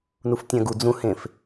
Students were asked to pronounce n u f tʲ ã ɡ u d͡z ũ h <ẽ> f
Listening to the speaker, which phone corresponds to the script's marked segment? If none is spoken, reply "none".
ẽ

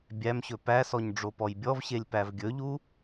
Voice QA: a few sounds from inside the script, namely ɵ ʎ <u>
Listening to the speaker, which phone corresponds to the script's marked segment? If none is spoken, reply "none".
u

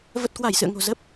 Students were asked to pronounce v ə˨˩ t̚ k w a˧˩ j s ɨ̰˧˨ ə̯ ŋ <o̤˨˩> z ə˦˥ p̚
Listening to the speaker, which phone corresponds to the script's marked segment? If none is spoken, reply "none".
o̤˨˩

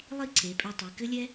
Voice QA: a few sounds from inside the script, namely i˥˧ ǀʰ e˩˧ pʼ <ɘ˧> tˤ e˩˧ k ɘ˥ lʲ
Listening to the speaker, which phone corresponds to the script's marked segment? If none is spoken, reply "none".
ɛ˧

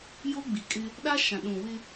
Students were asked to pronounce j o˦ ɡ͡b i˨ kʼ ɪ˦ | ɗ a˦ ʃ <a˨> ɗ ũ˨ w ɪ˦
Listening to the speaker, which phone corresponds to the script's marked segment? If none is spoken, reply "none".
ã˨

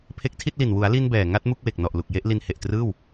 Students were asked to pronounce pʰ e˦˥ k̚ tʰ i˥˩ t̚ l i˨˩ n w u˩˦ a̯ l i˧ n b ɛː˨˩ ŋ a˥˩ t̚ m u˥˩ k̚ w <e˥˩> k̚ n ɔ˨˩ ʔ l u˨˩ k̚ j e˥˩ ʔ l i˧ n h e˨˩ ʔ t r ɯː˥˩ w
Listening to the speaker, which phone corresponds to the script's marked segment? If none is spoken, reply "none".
e˨˩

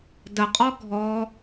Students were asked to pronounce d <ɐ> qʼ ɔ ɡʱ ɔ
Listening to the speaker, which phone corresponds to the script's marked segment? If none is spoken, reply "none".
ə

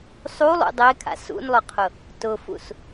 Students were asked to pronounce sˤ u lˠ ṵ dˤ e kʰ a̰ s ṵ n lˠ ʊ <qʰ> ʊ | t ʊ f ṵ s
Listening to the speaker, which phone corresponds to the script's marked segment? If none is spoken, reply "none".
qʰ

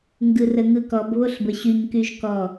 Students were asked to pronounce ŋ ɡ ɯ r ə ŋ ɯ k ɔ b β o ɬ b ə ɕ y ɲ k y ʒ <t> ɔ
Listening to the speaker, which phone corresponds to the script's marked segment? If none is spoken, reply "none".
k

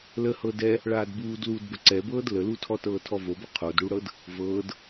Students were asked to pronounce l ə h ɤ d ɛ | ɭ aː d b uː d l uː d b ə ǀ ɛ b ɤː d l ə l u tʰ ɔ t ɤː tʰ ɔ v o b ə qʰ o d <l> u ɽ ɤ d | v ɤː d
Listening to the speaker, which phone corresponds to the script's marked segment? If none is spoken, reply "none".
ɽ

